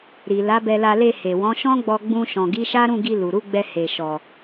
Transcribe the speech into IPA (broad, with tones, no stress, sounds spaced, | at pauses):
ɾ i˨ l a˨˦ b ɛ˧ l a˧ l e˧ h e˨ w ɔ̃˨˦ ʃ ɔ̃˦ ɡ͡b ɔ˧ ɡ͡b ũ˧ ʃ ɔ̃˨ ɡ i˨˦ ʃ a˦ ɾ ũ˦˨ ɡ i˧ l u˨ ɾ u˨˦ ɡ͡b ɛ˧ h e˨ ʃ ɔ˨